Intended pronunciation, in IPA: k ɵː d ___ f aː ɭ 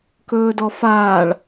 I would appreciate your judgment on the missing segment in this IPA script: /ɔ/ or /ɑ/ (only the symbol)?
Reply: ɔ